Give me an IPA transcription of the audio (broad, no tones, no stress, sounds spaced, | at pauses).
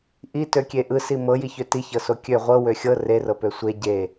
ʔ i t ø kʲ e ʔ ɯ s i m ɤ j i ç ø t i ç ɤ s o kʲ ø ʁʷ ɤ w ø xʲ ɤ r e r ɤ p ø sʷ e ɟ e